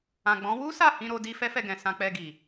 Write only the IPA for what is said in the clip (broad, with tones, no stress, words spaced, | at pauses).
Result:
ã˨ɡ͡bɔ̃˨˦ wu˦ sa˦˨hĩ˧ɾo˧di˧ fɛ˦fɛ˧ɡɛ̃˨ sã˧k͡pɛ˧ɡi˨